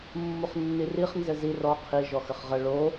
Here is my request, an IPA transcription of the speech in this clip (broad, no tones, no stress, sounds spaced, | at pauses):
mː u χ nː i r i χ n z ɘ z i r ɔ qʰ i ʒ ɔ x ɘ χ ʁ ə ɭ o